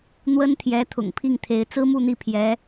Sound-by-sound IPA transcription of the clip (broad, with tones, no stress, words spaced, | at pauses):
n̪wə˥n t̪ʰjɛ˧˥ t̪ʰʊ̰˨˩ŋpʰi˥˩ŋt̪ʰe˧˥ɪ̯ t͡sɹ̩˥mu˥˧n̪i˥˩ pʰjɛ˧˥